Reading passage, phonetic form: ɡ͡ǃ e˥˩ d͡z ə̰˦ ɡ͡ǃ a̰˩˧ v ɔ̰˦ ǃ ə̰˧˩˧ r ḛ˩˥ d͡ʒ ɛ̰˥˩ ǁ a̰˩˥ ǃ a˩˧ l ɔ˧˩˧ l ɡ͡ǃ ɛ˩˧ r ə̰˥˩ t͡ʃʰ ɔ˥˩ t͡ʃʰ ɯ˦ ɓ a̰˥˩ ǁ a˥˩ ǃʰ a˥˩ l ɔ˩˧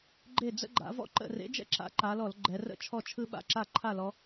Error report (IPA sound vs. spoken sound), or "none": none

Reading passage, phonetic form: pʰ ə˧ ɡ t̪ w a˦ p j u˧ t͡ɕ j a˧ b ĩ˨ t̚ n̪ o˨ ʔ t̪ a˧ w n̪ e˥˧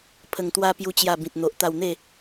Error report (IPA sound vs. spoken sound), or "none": ɡ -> ŋ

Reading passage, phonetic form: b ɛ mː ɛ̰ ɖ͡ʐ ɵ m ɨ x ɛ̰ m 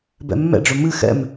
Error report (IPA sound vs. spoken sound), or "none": ɛ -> ɛ̰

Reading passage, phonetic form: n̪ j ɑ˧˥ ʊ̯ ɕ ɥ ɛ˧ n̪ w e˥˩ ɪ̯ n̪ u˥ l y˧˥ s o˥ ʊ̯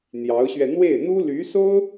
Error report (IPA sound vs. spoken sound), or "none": none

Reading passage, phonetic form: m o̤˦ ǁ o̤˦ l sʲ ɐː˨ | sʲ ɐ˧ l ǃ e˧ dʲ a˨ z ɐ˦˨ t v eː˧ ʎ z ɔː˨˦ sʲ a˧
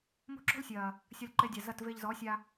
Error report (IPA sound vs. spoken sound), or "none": none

